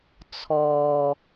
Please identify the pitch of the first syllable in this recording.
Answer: low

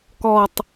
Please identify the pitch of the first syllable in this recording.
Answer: falling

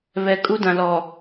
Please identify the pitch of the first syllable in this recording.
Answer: low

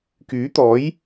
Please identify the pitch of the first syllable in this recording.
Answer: rising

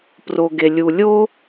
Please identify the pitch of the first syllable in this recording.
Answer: low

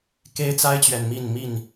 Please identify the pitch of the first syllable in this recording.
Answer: high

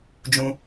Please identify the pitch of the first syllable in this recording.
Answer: high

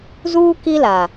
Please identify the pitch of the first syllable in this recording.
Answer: high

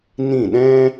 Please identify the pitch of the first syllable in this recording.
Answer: falling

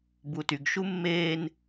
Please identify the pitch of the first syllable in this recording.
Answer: low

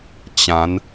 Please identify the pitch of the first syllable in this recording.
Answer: rising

